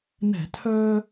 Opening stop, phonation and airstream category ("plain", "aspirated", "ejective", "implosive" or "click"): aspirated